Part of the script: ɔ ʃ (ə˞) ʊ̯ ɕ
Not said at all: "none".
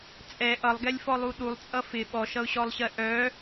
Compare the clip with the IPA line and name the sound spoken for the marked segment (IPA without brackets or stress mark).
ʌ